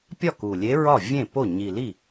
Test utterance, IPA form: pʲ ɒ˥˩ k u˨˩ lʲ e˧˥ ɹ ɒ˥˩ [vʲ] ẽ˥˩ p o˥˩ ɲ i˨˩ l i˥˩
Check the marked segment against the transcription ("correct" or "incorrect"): correct